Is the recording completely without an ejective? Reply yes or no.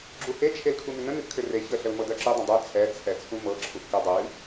yes